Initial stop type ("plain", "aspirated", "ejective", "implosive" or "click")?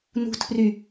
aspirated